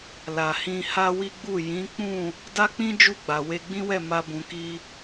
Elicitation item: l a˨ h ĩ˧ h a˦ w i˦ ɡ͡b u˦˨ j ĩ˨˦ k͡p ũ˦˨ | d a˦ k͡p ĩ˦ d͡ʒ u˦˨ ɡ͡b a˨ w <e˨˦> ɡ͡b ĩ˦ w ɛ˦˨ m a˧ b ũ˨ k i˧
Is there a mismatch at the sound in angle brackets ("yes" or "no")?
yes